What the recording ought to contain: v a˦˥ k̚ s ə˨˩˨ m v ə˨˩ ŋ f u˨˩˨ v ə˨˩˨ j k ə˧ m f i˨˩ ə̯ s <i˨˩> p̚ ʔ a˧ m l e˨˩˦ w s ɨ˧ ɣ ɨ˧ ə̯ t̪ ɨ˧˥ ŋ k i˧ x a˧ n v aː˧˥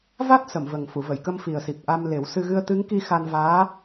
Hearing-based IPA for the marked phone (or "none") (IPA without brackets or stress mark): i˨˩